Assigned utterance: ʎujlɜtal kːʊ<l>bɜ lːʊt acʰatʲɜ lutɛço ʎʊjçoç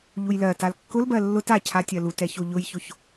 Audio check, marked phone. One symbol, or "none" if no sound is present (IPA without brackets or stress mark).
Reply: l